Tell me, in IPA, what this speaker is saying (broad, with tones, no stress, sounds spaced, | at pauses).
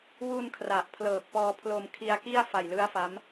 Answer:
w u˧ n kʰ r a˨˩ ʔ pʰ l ɤː˨˩ k̚ p ɔː˧ pʰ l o˧ m kʰ i˧ a̯ k i˥˩ a̯ f a˨˩ j l ɯ˦˥ a̯ f a˦˥ m